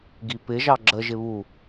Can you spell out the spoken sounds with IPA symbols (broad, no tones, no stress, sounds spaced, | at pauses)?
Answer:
ɡ i p ɪ ʒ ɑ ɡ͡ǁ ə ʒ ɪ β u